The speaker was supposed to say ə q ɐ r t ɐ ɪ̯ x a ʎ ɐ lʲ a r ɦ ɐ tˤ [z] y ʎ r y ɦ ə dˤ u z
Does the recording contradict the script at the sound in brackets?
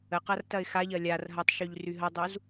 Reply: yes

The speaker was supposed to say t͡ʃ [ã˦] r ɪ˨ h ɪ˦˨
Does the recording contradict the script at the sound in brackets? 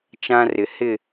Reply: no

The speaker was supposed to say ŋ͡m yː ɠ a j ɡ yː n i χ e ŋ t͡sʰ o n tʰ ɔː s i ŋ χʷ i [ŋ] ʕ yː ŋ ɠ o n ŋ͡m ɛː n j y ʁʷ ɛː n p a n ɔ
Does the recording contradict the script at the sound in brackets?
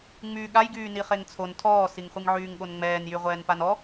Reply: no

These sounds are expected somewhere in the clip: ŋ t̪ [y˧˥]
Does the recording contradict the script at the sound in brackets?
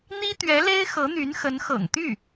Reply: yes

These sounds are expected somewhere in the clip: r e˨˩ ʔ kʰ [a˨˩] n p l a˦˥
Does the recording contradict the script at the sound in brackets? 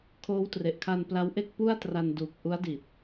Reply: yes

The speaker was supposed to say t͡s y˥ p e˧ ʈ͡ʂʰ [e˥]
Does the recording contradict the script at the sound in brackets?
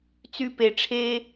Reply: no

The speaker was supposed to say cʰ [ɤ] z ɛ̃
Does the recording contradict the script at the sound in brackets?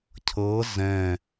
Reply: no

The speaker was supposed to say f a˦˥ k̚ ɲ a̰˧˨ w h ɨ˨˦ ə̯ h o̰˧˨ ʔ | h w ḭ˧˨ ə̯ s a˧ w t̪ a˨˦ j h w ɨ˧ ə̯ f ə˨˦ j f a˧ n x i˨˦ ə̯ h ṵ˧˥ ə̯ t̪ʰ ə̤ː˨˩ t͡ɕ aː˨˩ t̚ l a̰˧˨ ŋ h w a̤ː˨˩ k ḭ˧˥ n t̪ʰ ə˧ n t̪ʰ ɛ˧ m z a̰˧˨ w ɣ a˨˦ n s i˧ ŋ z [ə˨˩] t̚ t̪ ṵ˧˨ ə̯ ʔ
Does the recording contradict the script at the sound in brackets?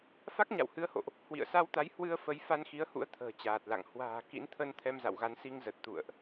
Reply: no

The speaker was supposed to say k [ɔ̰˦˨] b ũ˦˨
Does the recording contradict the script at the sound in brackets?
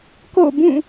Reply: yes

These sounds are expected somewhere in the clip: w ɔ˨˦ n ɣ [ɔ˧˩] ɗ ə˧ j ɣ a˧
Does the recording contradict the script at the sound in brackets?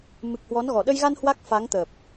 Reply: no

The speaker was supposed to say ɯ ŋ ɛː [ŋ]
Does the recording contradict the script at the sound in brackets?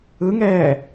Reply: yes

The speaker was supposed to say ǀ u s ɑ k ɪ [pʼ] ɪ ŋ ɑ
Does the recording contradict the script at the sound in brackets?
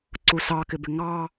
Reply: yes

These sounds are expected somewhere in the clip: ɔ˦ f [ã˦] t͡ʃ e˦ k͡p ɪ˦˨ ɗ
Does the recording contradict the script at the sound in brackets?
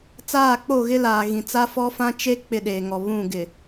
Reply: no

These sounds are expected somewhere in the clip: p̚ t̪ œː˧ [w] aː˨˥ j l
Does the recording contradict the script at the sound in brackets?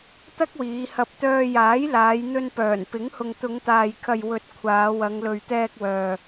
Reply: yes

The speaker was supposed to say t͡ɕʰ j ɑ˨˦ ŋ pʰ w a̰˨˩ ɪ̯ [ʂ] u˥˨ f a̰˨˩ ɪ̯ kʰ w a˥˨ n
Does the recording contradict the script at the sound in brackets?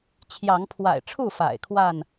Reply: yes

